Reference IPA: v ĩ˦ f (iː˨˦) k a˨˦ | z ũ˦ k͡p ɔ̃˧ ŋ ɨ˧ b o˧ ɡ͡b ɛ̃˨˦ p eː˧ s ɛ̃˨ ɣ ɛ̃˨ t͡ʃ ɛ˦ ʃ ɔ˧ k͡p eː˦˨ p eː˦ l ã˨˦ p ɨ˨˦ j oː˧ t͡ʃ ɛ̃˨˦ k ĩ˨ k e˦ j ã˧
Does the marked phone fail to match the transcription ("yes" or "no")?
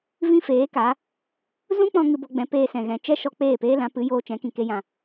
yes